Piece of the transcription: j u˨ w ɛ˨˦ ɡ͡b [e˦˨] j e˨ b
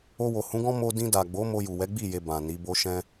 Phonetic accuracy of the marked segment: incorrect: i˦˨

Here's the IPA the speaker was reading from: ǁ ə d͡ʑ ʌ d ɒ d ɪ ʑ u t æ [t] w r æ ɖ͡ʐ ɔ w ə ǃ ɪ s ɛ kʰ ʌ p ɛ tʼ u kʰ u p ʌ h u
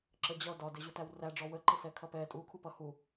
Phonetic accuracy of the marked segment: incorrect: none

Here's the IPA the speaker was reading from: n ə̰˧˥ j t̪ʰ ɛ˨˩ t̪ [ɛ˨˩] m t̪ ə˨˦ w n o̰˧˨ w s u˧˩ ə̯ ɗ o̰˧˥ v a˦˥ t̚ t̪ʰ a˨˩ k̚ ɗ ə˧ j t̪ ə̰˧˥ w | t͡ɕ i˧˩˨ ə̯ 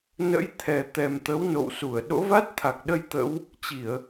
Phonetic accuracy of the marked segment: correct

